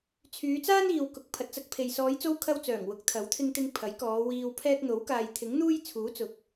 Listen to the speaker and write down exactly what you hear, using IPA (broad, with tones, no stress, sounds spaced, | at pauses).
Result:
t͡sʰ yː˨˧ t͡s aː˥ n iː˨ w k ʊ˨˥ k̚ pʰ ɐ˨ t̚ t͡s ɐ˧ k̚ pʰ e˨ j s ɔː˨˧ j t͡s o˧ w kʰ ɐ˧ w t͡s œː˨˩ ŋ w ʊ˨˥ k̚ t̪ʰ ɐ˨˥ w t̪ʰ ɪ˧ ŋ t̪ ɪ˧ ŋ pʰ ɐ˨˥ j k ɔː˨˧ w iː˧ w pʰ ɛː˧ k̚ n̪ o˨˥ w k aː˨ j t̪ʰ ɪ˨˥ ŋ n̪ uː˥ j t͡sʰ uː˨˥ t͡s ʊ˨ k̚